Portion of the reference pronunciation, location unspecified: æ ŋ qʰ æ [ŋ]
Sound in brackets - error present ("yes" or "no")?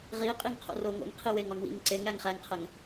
no